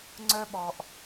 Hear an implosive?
yes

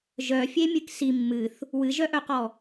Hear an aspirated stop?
no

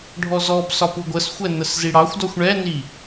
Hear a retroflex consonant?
yes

